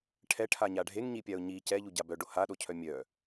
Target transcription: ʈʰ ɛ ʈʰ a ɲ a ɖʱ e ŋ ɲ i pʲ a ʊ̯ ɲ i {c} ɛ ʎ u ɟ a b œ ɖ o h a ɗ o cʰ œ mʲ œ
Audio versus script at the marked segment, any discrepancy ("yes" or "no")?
no